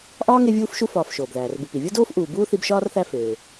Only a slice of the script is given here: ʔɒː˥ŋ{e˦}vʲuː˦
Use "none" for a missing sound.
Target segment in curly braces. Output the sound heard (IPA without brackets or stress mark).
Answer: e˦